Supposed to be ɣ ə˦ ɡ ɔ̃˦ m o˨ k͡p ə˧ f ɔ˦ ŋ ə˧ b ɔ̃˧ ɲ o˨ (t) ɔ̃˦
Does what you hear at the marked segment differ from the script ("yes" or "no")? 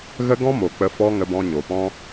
yes